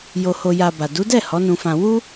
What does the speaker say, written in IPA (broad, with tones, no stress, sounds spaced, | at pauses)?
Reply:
j o˧ h o˧ j a˧ b a˨ d u˨˦ d ɛ˦˨ h ɔ˨˦ n ũ˧ f ã˧ w u˦